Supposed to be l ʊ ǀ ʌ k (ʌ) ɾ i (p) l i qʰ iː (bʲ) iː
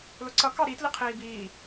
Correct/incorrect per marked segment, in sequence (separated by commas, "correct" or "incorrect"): incorrect, incorrect, incorrect